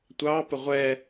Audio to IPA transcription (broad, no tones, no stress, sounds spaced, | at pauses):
tʷ ɑ p ə ʁʷ ɛ